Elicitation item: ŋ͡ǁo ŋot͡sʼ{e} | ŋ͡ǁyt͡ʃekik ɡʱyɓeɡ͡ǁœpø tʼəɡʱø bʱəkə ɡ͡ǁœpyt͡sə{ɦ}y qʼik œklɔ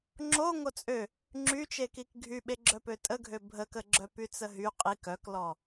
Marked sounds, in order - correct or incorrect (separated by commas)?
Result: incorrect, correct